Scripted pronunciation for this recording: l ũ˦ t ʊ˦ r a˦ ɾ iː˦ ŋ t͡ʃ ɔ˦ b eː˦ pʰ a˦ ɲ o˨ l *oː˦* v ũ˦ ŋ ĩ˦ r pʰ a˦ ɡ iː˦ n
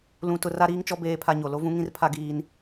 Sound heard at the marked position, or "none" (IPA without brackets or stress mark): o˦